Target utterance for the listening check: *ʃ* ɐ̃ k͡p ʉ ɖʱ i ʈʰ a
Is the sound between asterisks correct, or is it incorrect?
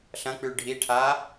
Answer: incorrect